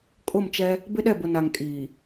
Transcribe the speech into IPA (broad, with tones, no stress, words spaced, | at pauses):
kʼʊ˦˨mt͡ʃɛ˦ | bɪ˦ɗɛ˦˨bʊ˨ na˨ŋkʼiː˨